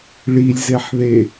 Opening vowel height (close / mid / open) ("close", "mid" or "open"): close